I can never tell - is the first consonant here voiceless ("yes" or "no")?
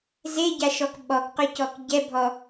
no